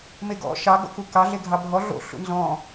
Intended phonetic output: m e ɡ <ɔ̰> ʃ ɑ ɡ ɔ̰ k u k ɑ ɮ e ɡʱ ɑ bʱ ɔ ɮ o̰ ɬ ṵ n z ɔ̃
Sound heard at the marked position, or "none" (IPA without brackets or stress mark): ɔ̰